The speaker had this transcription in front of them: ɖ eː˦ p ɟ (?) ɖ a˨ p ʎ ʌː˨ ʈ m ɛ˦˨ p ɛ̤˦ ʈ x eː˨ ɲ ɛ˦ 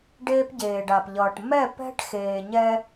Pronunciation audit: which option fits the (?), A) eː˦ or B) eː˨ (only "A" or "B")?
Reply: B